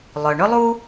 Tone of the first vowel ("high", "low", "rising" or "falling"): low